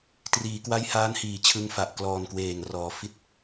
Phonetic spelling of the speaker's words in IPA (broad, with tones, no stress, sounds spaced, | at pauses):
t r iː˩˦ k w a˦˥ j h aː˦˥ n h iː˩˦ t͡ɕʰ ɯ˧ ŋ f a˨˩ ʔ k l ɔː˨˩ n k w eː˨˩ ŋ r ɔː˩˦ f i˨˩ t̚